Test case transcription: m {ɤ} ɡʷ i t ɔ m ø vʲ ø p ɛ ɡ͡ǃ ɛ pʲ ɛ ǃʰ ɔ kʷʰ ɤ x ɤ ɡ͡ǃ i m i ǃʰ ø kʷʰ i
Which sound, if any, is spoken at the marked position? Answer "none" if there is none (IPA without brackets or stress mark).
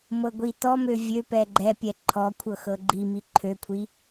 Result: ɤ